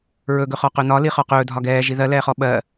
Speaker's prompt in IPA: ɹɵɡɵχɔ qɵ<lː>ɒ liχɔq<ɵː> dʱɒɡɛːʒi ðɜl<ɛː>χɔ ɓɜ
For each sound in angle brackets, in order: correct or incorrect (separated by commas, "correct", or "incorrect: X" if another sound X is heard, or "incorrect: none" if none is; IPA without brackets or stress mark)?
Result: incorrect: n, correct, correct